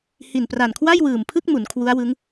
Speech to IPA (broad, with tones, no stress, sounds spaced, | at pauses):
h i˨˩ n p r a˨˩ n kʰ w a˥˩ j w ɯː˨˩ m pʰ ɯ˥˩ k̚ m u˩˦ n kʰ w u˦˥ a̯ w ɯ˦˥ ŋ